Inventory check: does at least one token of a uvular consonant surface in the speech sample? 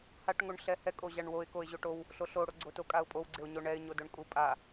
no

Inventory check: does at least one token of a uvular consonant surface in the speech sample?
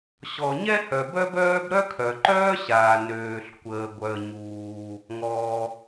no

